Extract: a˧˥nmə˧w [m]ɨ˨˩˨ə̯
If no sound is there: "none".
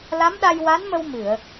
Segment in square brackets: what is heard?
m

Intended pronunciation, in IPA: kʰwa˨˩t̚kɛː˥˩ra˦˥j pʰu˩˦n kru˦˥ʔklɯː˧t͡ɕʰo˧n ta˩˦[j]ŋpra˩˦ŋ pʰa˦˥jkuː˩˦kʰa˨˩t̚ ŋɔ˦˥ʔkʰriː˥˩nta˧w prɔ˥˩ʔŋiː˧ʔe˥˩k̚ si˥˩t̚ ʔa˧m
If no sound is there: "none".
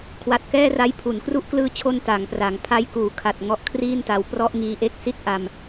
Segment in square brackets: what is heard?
none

